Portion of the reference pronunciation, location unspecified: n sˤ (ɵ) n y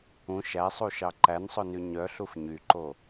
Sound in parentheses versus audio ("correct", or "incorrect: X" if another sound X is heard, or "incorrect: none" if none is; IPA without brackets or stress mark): correct